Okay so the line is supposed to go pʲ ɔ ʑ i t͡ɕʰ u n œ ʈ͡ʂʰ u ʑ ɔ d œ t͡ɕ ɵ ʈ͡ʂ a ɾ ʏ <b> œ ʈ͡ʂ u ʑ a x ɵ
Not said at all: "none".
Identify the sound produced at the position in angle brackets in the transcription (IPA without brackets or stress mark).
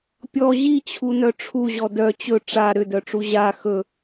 d